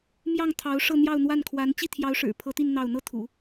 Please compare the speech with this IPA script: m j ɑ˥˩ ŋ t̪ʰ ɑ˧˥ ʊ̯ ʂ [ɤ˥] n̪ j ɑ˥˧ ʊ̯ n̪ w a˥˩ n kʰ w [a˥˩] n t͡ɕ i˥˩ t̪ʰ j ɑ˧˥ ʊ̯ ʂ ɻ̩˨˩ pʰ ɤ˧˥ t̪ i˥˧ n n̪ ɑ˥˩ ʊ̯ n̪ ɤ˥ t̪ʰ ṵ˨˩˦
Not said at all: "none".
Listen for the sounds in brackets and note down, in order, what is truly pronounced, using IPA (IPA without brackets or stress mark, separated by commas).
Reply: ɤ˥˧, a˧˥